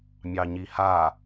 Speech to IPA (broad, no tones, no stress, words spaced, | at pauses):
mʲɑɲiha